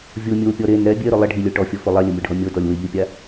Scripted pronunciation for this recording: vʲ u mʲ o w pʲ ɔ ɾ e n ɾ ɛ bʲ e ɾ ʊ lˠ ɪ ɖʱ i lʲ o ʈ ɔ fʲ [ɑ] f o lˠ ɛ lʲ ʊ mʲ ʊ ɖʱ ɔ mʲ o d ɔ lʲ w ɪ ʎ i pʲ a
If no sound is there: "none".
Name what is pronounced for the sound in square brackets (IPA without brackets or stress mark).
ɔ